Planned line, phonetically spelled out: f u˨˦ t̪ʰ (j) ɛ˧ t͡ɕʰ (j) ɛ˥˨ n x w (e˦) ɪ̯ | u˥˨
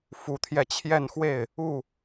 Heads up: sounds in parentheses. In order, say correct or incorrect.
correct, correct, incorrect: e˥˨

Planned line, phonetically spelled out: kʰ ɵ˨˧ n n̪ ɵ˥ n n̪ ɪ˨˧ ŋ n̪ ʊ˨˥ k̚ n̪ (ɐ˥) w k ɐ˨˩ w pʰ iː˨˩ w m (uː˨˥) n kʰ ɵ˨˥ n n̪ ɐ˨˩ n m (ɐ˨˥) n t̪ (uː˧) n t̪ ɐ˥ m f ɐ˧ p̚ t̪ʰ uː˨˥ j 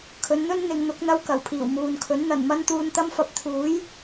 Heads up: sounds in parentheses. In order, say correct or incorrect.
correct, incorrect: uː˨, incorrect: ɐ˥, correct

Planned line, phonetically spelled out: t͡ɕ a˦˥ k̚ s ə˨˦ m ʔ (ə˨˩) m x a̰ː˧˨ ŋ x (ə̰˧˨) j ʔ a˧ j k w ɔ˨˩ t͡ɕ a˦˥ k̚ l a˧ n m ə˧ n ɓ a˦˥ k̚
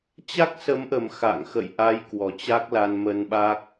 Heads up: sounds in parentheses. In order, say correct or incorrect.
correct, correct

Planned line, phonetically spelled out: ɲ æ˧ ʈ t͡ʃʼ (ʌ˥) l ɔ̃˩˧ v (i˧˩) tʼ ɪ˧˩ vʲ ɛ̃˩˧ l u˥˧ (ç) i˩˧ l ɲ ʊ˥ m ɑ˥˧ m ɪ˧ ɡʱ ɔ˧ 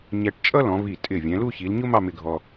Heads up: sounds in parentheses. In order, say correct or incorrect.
correct, correct, correct

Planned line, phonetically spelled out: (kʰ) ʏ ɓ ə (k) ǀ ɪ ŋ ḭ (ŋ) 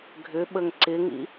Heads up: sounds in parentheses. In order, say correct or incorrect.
incorrect: ɡʱ, incorrect: ŋ, incorrect: none

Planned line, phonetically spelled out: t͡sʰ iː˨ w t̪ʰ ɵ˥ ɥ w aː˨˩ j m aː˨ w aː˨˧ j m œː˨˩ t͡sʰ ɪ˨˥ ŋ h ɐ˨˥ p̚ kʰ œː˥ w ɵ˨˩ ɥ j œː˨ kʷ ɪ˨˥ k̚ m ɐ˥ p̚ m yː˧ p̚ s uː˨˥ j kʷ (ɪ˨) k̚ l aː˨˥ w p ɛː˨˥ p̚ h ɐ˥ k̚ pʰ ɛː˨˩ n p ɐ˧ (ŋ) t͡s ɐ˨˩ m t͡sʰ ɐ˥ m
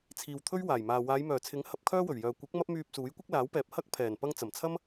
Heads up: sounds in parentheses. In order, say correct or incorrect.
incorrect: ɪ˥, correct

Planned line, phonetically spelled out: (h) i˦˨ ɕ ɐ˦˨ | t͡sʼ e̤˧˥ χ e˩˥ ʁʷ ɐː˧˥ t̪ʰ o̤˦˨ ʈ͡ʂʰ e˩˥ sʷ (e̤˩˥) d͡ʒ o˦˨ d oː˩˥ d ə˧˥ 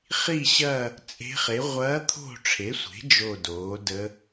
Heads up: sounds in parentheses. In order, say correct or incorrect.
incorrect: χ, correct

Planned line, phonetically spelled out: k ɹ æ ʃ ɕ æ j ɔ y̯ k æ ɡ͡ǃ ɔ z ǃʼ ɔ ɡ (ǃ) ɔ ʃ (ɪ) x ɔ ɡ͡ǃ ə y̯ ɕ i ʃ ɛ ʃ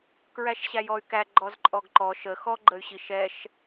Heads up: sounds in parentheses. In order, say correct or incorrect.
correct, incorrect: ə

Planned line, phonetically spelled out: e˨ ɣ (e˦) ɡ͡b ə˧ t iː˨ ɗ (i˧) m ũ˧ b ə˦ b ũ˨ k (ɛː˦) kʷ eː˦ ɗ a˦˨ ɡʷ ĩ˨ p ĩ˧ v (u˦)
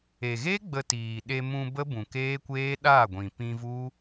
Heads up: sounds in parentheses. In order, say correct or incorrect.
correct, incorrect: e˧, incorrect: eː˦, correct

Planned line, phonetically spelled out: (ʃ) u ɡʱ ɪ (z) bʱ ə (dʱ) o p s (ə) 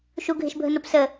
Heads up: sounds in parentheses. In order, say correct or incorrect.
correct, incorrect: ʃ, incorrect: n, correct

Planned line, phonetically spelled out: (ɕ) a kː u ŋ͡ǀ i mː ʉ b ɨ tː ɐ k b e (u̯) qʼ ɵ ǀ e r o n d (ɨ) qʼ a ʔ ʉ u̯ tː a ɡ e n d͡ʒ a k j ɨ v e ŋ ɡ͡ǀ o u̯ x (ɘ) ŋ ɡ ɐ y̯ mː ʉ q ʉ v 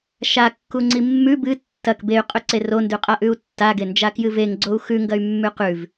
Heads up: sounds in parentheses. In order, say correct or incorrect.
incorrect: ʃ, incorrect: y̯, incorrect: ʉ, incorrect: ʉ

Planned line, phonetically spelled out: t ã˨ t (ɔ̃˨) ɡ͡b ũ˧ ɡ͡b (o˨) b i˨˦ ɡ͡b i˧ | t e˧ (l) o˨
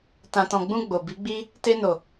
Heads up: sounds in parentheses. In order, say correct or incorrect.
correct, correct, incorrect: n

